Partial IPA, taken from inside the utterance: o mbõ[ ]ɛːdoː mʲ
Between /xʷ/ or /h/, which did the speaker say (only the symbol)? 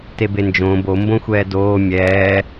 xʷ